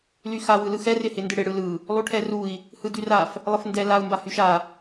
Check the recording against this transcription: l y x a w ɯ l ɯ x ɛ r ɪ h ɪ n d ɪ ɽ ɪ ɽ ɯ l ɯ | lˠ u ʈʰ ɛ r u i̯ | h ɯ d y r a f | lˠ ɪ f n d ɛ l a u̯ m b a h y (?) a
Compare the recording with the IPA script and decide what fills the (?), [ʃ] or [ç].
ʃ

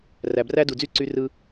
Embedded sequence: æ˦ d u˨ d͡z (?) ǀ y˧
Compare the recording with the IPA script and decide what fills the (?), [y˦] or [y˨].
y˦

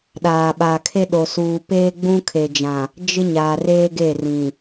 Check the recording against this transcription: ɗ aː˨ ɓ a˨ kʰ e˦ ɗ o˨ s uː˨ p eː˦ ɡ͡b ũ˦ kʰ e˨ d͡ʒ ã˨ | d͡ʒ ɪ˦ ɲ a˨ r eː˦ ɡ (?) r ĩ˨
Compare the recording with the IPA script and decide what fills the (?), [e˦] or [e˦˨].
e˦˨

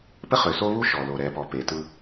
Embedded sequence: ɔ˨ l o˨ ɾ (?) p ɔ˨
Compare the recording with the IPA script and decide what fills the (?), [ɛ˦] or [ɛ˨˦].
ɛ˨˦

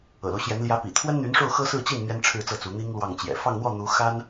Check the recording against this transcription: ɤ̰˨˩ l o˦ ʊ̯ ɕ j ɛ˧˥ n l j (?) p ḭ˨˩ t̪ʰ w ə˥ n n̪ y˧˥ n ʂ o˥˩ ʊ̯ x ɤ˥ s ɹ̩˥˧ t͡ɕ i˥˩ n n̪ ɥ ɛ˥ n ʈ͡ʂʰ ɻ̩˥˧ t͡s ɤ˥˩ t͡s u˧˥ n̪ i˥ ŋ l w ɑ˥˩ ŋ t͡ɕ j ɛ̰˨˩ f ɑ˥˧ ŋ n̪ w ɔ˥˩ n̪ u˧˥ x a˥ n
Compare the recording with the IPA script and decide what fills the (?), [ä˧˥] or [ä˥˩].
ä˧˥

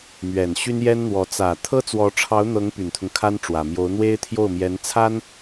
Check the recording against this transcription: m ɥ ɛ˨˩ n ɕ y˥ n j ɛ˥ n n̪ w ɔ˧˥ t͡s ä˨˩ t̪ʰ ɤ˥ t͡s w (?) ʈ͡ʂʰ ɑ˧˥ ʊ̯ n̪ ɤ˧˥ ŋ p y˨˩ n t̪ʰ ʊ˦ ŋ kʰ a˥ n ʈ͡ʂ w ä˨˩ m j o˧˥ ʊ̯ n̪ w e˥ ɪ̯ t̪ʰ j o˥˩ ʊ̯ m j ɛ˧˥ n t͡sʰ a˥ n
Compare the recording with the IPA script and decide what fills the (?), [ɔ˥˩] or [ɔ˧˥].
ɔ˧˥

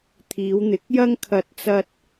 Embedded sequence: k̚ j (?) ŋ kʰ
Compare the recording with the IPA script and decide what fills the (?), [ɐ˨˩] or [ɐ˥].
ɐ˥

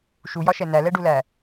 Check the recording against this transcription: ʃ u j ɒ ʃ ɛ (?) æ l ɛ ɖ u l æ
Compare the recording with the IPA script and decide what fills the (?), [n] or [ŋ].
n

